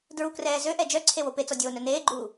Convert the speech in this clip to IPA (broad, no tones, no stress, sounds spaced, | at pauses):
d ɹ u k r ɛː z ø ʔ ɛ d͡ʒ œ ǀʰ e w o p e t͡s ɔ dʲ oː n œ n eː ɡ͡ǃ uː